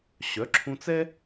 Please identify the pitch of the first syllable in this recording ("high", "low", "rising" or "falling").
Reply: rising